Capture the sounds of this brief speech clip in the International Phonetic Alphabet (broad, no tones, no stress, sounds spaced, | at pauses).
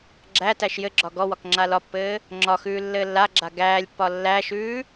ɡ͡ǁ æ t æ ʃ j ɘ ɡ͡ǁ ɒ ɡ ɔ w ɒ k ŋ͡ǁ a l ɒ pː ɘː | ŋ͡ǁ ɒ x ʉː lː ɘː lː a ɡ͡ǁ a ɡ æː lʲ pː ɒ lː æ ʃ ʉː